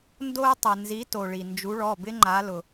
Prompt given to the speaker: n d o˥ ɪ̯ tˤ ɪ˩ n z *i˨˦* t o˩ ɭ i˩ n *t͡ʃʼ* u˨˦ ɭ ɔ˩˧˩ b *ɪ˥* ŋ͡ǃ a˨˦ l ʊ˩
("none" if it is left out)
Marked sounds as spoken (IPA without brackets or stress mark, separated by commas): i˨˦, d͡ʒ, ɪ˥